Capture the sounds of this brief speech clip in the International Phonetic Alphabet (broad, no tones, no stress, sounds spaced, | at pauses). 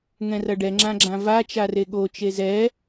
ŋ ɛ̃ r ɐ ɖ ɛ ŋ͡ǁ ã ɡ͡ǁ ã v a t͡ʃ a r e ɠ o t͡ʃ e z ɛ